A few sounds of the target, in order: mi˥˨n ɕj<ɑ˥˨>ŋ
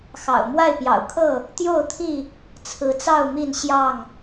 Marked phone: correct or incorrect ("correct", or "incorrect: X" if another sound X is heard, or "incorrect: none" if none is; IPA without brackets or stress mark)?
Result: correct